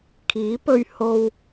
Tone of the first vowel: rising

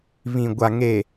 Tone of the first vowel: low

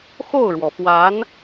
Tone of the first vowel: falling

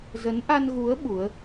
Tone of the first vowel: rising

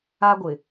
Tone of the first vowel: high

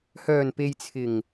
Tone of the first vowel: low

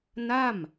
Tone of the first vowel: falling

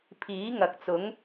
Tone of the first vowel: rising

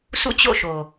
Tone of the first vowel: falling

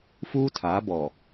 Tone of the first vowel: high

